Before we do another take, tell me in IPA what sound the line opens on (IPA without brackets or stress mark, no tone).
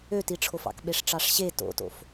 ø